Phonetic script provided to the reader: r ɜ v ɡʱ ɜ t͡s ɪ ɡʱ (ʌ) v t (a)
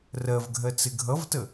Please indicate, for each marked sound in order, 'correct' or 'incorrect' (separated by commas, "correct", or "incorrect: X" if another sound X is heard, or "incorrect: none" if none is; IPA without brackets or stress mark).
correct, incorrect: ə